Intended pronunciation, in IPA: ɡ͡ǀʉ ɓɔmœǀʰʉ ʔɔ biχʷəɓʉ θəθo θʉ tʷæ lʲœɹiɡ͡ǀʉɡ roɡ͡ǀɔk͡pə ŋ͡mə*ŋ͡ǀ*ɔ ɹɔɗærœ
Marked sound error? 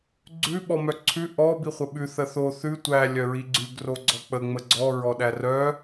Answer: yes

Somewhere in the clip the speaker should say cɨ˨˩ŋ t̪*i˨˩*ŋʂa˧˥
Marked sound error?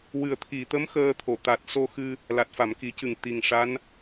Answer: no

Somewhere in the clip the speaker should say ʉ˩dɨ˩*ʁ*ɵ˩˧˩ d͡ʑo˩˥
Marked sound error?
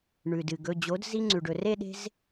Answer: yes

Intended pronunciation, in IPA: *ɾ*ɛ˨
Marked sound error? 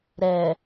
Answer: no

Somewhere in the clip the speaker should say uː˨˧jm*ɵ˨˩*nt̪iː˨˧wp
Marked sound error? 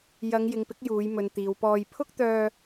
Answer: yes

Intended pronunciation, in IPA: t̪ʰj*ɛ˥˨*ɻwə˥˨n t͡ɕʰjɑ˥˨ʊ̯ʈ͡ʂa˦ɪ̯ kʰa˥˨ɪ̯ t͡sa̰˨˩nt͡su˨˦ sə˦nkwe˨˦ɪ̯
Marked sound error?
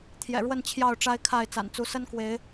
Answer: yes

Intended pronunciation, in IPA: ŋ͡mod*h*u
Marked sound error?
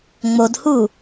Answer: no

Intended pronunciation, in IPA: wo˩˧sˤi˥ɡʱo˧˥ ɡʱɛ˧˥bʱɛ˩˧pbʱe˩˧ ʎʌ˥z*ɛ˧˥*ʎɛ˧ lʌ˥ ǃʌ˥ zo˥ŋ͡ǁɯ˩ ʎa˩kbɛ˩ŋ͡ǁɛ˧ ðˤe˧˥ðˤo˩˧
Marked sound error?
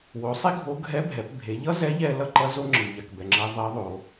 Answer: no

